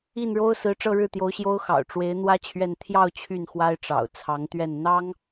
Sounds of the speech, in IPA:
i˥˩ n ɻ o˥ ʊ̯ s ɹ̩˧˥ ʈ͡ʂ ɤ˥˧ ɻ ɻ̩˥˩ t̪ j o˧˥ ʊ̯ ɕ j o˥ ʊ̯ x ɑ̰˨˩ ʊ̯ ʈ͡ʂ w e˧˥ ɪ̯ n̪ w ä˥ t͡ɕʰ ɥ ɛ˥˧ n t̪ʰ j ɑ˥˧ ʊ̯ t͡ɕʰ y˥˩ n x w a˥ ɪ̯ ʈ͡ʂ ɑ̰˨˩ ʊ̯ t͡sʰ ɑ˧˥ ŋ t̪ ɥ ɛ˥˩ n n̪ ɑ˥ ŋ

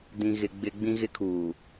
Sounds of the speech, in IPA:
d ĩ˨ ɣ ɪ˨ ɡ͡b ɪ˨ ɡ͡b ĩ˦ ɣ ɪ˦ kʰ uː˨

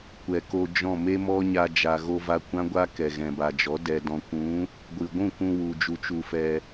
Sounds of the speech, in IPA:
kʷ ɛ˨ k o˧ d͡ʒ ɔ̃˦˨ m e˦ m ɔ˦ ɲ a˧ d͡ʒ a˨ ɣ o˧ v a˧ kʷ ã˦ ɡʷ a˦ k ɛ˨ ɣ ɛ̃˨ b a˨ d͡ʒ ɔ˨˦ d ɛ˨ d ɔ̃˨ kʷ ũ˨˦ | ɡʷ ɨ˨ ɡʷ ũ˦˨ k ũ˧ w u˨ d͡ʒ u˧ t͡ʃ u˧ f ɛ˧

